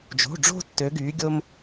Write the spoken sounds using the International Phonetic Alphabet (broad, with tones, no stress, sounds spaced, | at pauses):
d͡ʒ o̤˩˧˩ ɖ͡ʐ o̤˧ tː ø˩˧ ɡ yː˩˧ ɡʲ o˧ m